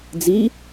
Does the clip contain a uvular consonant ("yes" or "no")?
no